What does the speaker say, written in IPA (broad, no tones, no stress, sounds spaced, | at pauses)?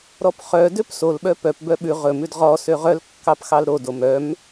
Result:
ɾ ɔ p χ œ d ø p s o l ɓ œ p œ p b œ ɓ ʉ ʁ ɵ m ʉ d ʁ ɔ s ø ʁ œ l kː ɑ p x ɑ l ɾ o d o m œ m